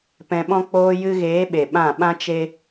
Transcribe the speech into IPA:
p ɛ̃˧ ɓ ɔ̃˦ k͡p oː˧ j ɨ˧ ɣ eː˨˦ ɓ e˨ ɓ ã˦˨ ɓ ã˦ t͡ʃ e˦

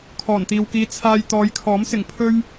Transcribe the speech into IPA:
kʰ ɔː˨˩ n t̪ iː˨ w k iː˧ t͡sʰ aː˧ j t̪ ɔː˨˧ j kʰ ɔː˨˥ m s ɪ˨˩ ŋ pʰ ɵ˥ ɥ

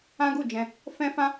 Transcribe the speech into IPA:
ã˦ ɡ u˦˨ d͡ʒ ɛ̃˧ | f ɛ̃˦ f ã˦

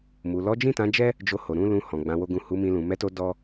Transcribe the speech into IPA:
m u˨ l ɔ˨˦ d͡ʒ ĩ˦˨ t ã˨˦ d͡ʒ ɛ˦ | d͡ʒ o˧ h o˨ ɾ ũ˨˦ l ũ˧ h ɔ̃˨ ɡ͡b ã˨˦ w o˦ ɡ ũ˦˨ h u˨˦ m ĩ˧ l ũ˨ m ɛ˨˦ t o˧ d ɔ˦

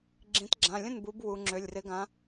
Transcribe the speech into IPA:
ɡ͡ǁ ĩ˩˧ t ɡ͡ǁ ã˩˧˩ lʲ ə̃˥˩ n b u˩˧ b w u˩˧ ŋ͡ǁ ø˩˧˩ lʲ r ɪ˨˥ ɡ ã˨˥

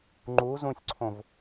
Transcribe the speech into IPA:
ŋ͡ǃ u z ũ sʲ ǀʰ õ v

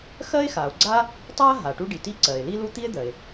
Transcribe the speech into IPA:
x ɜ˥ e̯ x a˩ o̯ ɡ͡ǀ a˥ | tˤ a˥ ɦ a˩ ʈ u˥ ɖ i˩ t i˥ ǀ ɜ˩ e̯ l i˥ l u˥ t̪ i˥ e̯ d̪ ɜ˩ e̯

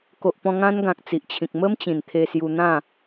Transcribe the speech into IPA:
k o˨ ʔ p ɔ̃˧ ŋ ã˦ n ɡ ã˨ k̚ t͡s i˨ ʔ t͡ɕʰ ĩ˨ k̚ m ə˦ m t͡ɕ ĩ˨˩ n t̪ʰ e˧ s j u˧ n̪ ã˥˧

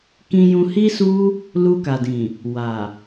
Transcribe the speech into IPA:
k ĩ˧ j ũ˧ h i˦ s u˦ | l u˧ k a˨ d ĩ˨ | w a˨

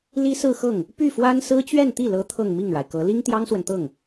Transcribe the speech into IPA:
l i˥ s ɹ̩˥˧ x ɤ˥˩ ŋ | p y˥˩ f w a˥ n s ɹ̩˥ t͡ɕ ɥ ɛ˥˧ n t̪ i˥˩ l ɤ˧˥ t̪ʰ ɤ˥˧ ŋ m i˥˩ ŋ ɻ a˩ ɪ̯ k ɤ˧˥ l i˥ ŋ t̪ j ɑ˥ ŋ s w ə˨ n t̪ ɤ˥˩ ŋ

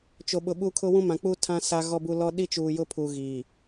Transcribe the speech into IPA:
t͡ʃ o˨ ɓ ʊ˨ ɓ u˦ kʰ ʊ˦ w ũ˦ m ã˨ k͡p uː˦ tʰ ã˦ s a˦ ɣ ɔ˦ b u˦ l ɔ˦ ɗ i˦ t͡ʃ uː˨ j ʊ˦ pʰ uː˨ ɣ iː˨

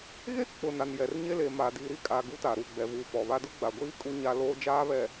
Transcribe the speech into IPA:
ɣ e˦ k͡p ʊ˨ n a˨ n j ɛ˨ r ɲ e˦ l e˨ m a˨ d i˨ ɾ i˦ kʼ aː˨ ɡ u˦ t a˨ ɾ uː˨ ɡ͡b ɛ˨ v uː˨ p ɔ˨ β a˦ d ʊ˦ ɡ͡b a˨ ɡʷ iː˦ kʼ u˦ ɲ a˦ l oː˦ d͡ʒ aː˦ β ɛ˨

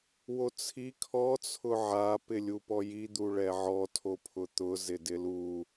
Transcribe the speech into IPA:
w o t͡sʰ i kʰ ɔ t͡sʰ ʊ ʕ a p ɪ lʲ u p ɔ j i d̪ u ɭ ɛ ʕ ɔ tʰ o pʰ ʊ t̪ ʊ z ɪ d ɪ l u

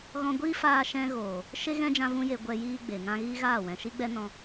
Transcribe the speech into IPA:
ɣ ɔ̃˧ ɡʷ iː˦ f aː˧ ʃ ɛ̃˧ ɣ oː˨ | ʃ e˦ ɣ ɛ̃˦ d͡ʒ ã˧ v ũ˦ j e˧ ɡʷ ɛ˧ j iː˦ ɡ͡b e˨ ŋ ã˦ ɣ iː˦ ɣ aː˦˨ w ɛ̃˨ ʃ i˦ ɡ͡b ɛ˦ n ɔ̃˧

